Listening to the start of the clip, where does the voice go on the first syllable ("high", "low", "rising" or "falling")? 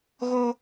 high